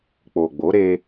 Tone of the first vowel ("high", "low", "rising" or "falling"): low